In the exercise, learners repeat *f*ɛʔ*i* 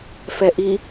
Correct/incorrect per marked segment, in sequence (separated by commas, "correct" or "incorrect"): correct, correct